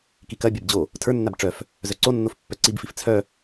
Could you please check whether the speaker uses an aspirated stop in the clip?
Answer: yes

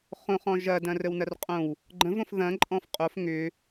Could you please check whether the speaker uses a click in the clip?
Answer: yes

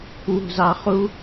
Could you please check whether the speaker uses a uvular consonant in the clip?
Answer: yes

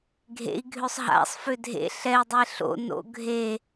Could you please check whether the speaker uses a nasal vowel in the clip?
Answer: no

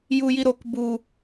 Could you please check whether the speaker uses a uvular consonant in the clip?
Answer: no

